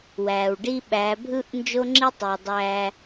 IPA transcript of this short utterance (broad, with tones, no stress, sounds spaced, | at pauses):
w æː˨ w ɖ i˦ ɓ æ˨˦ bʱ ɯ˦ ʔ n d͡ʒ o˦ ŋ͡ǁ i˦ tˤ i˨ w dˤ æː˦